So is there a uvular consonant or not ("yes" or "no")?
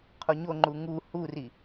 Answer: yes